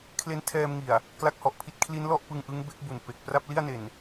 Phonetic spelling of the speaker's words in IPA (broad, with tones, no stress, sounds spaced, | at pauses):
kʰ l e˦˥ n tʰ ɛː˧ m ŋ i˨˩ a̯ | k l a˦˥ k̚ h ɔ˨˩ ʔ pʰ i˦˥ t̚ kʰ l i˦˥ n l ɔ˥˩ ʔ p ɯ˧ ŋ ʔ ɯ˦˥ ŋ b e˦˥ k̚ b u˨˩ n p e˨˩ k̚ p r a˥˩ p̚ l i˥˩ a̯ n e˨˩ n